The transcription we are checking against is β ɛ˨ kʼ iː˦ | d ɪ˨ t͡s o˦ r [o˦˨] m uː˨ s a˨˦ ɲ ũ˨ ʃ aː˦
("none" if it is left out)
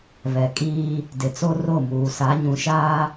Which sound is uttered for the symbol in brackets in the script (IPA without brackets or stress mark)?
o˦˨